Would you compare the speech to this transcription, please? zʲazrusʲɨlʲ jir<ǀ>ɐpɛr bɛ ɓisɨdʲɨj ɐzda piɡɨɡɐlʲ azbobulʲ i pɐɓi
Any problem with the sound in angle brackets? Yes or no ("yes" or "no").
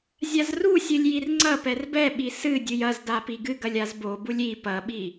yes